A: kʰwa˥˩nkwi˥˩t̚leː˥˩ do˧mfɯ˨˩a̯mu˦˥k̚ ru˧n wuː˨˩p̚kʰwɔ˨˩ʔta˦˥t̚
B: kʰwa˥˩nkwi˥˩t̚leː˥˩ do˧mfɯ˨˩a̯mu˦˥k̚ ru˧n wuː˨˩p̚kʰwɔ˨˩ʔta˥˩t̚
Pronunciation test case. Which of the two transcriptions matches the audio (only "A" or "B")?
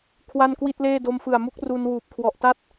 B